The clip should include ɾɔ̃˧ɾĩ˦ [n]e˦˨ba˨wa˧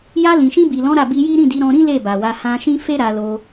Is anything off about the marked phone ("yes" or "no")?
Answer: yes